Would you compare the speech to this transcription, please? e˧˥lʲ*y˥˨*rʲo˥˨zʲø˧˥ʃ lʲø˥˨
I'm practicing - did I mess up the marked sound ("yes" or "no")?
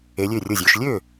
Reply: yes